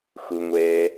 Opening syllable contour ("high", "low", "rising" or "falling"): low